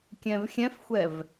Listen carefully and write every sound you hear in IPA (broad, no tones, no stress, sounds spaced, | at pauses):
kʲ ɛ̃ v xʲ ɛ̃ f xʷ ɛ v